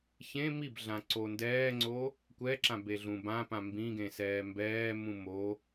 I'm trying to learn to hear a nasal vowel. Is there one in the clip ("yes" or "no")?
yes